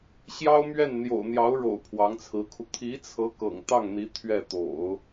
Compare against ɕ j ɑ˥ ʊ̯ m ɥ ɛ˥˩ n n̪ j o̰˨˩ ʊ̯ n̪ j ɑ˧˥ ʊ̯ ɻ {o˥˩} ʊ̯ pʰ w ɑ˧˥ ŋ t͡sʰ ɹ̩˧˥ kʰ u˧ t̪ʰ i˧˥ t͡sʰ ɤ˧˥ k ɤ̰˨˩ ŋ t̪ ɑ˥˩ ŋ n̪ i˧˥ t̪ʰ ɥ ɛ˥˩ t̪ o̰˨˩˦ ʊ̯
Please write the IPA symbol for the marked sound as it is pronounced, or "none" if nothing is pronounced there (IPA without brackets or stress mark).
o̰˨˩